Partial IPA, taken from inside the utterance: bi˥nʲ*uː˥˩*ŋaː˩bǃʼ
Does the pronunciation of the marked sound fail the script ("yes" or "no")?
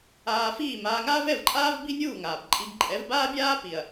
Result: no